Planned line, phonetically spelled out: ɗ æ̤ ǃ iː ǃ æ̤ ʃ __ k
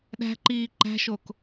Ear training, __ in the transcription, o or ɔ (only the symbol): o